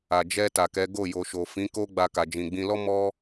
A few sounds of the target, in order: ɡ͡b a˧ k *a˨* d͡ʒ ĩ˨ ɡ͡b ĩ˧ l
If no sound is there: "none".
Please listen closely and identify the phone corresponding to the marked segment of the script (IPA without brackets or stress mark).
a˨